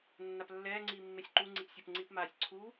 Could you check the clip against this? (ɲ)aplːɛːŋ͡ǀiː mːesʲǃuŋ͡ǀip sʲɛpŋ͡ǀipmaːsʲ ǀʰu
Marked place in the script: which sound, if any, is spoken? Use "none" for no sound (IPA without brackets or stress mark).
nː